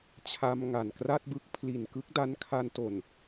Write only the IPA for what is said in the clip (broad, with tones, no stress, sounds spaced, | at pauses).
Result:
t͡ɕʰ a˧ m ŋ a˨˩ n k r a˥˩ t̚ b ɯ˦˥ k̚ pʰ l i˨˩ n k ɯ˦˥ k̚ d a˦˥ n kʰ a˧ n t o˨˩ n